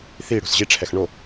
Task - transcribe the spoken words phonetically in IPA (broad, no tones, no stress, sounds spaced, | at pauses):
θ i ɽ o̤ s ʑ i ʈ͡ʂʰ ɛ x ɳ o